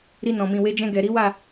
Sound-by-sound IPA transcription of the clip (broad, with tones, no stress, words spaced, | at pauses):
ɾi˧nɔ̃˨mĩ˨we˨˦ d͡ʒɛ̃˧ɡɛ˨ɾi˨˦wa˦˨